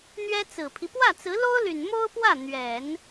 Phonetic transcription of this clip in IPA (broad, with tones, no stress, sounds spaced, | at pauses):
n̪ ɥ ɛ˥ t͡s ɹ̩˨˩ pʰ i˦ p w ä˥˩ t͡s ɹ̩˧˥ l o˥ ʊ̯ l y˨˩ n m o˥ ʊ̯ p w ä˥˩ n̪ ɥ ɛ˨˩˦ n